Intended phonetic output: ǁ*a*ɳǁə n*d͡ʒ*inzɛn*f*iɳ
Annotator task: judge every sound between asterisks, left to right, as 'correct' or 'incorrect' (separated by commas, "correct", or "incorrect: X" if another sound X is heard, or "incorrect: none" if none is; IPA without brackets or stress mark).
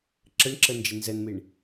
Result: incorrect: ə, correct, incorrect: m